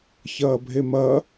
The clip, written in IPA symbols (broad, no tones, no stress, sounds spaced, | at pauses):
ç ɐː bʱ e m ɐː